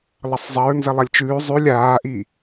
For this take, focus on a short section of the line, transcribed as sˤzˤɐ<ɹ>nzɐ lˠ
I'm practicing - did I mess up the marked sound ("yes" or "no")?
no